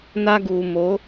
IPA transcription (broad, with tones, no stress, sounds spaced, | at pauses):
n aː˦ ɡ uː˨ m o˨˦